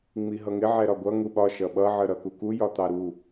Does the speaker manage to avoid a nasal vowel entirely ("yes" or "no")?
yes